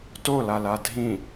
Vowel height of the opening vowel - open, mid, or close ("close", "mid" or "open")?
mid